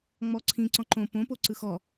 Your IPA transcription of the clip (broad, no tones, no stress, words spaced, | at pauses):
ŋ͡mɔǀʰĩ ǀɔ̃ǃõ põpo ǀɯxɔ